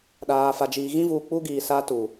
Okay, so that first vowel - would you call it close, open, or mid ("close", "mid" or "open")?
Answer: open